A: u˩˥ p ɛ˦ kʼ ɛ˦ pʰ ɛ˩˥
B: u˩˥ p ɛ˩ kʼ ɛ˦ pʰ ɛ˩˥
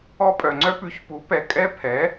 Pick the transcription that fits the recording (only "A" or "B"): B